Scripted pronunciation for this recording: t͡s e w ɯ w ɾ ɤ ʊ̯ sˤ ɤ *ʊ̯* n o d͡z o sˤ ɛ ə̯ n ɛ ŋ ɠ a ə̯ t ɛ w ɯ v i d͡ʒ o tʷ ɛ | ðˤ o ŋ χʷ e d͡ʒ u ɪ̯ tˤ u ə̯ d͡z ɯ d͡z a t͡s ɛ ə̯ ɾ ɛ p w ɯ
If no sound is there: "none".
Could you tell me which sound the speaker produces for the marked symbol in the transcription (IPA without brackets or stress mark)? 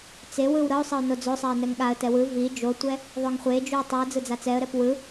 ʊ̯